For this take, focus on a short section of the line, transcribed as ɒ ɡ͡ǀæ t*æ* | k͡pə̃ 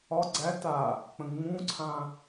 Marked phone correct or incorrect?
incorrect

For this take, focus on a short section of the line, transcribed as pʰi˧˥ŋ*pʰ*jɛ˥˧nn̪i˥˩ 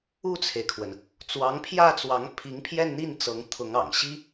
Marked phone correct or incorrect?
correct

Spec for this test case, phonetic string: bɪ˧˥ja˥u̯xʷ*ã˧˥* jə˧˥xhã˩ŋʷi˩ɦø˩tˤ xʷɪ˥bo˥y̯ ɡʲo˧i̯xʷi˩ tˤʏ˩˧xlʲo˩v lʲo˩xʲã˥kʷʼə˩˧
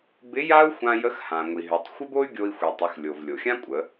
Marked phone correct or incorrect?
incorrect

